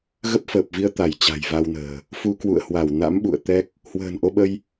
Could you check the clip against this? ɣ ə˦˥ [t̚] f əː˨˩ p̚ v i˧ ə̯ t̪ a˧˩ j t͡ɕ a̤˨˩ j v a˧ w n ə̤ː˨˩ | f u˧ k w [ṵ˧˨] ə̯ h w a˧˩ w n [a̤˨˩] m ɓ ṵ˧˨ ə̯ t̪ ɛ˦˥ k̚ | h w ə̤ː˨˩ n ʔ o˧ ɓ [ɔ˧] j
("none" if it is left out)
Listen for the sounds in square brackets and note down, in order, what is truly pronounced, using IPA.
p̚, ṵ˧˨, a̰˧˥, ə˧

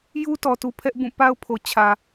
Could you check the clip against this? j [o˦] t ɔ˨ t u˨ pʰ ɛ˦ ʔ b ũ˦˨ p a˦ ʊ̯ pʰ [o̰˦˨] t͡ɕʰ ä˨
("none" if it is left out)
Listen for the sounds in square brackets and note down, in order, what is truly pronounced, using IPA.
u˦, o˨

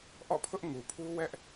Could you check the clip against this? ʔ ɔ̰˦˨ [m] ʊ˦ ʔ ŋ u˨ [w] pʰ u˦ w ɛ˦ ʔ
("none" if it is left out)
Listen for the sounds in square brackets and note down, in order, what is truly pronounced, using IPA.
pʰ, none

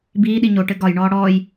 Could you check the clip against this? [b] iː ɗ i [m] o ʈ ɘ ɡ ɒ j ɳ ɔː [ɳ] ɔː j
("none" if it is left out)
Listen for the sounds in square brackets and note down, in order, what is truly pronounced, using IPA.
b, ɲ, ɽ

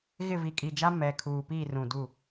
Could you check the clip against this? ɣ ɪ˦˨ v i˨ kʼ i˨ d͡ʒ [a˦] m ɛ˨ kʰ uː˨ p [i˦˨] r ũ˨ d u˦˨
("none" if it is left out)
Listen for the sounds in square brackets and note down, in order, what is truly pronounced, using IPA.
a˦, i˦˨

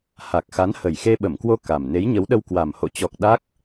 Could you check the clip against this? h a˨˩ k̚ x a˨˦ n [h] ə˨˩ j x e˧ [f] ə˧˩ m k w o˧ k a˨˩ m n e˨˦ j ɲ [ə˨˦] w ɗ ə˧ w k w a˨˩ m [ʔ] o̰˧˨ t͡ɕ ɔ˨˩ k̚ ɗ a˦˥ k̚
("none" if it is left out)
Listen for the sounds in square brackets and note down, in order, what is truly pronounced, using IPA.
h, ɓ, ə˨˦, h

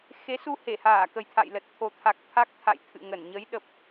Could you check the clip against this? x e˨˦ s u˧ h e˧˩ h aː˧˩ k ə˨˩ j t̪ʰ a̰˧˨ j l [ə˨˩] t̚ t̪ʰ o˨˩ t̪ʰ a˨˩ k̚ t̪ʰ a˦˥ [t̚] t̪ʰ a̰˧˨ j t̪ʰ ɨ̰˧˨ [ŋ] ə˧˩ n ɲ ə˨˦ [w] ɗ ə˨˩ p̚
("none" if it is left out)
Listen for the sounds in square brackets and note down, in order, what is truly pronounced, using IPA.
ə˨˩, k̚, ŋ, j

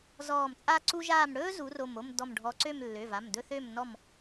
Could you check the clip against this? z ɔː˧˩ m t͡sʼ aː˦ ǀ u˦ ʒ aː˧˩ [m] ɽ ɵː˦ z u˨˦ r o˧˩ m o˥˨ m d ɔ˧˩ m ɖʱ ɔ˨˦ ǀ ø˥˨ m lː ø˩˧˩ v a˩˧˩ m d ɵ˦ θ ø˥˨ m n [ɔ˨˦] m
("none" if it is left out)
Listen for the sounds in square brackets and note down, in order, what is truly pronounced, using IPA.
m, ɔ˥˨

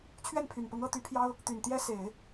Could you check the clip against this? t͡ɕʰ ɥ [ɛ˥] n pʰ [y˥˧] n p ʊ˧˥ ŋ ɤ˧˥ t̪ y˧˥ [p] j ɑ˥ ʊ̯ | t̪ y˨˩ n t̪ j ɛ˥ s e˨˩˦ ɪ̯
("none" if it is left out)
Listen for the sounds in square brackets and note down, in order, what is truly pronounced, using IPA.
ɛ˥˩, y˨˩, pʰ

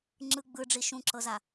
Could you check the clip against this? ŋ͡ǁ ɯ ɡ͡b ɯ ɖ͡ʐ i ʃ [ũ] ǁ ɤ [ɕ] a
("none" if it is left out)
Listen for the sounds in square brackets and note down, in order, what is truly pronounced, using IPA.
ũ, z

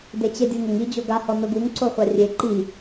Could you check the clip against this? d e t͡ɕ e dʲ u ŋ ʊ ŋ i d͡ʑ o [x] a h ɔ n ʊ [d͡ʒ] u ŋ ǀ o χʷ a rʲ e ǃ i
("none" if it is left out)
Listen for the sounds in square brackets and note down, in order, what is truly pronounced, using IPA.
ɡ, ɡ

